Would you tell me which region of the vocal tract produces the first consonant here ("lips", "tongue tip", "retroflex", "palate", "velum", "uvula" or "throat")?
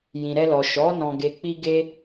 palate